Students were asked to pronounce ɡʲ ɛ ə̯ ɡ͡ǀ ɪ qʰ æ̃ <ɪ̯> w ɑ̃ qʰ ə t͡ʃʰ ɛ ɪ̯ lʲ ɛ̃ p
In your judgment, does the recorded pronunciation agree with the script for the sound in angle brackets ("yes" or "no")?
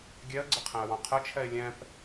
no